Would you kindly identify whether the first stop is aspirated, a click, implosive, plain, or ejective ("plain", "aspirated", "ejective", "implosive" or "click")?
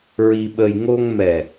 implosive